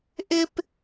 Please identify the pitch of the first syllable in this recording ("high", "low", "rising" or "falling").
high